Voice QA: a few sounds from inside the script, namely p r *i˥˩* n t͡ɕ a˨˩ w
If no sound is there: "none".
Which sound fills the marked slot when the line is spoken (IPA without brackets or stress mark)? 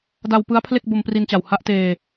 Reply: i˧